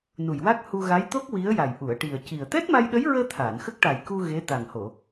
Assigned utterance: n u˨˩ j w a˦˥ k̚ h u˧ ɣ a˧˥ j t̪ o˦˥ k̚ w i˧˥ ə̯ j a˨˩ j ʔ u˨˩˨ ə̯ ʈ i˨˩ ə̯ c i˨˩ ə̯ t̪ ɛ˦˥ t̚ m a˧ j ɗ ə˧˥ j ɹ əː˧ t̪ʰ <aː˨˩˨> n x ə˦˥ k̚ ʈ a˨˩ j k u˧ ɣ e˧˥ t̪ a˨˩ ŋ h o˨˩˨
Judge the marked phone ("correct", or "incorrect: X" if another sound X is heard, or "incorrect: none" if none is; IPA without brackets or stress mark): correct